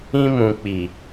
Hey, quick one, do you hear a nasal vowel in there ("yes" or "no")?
yes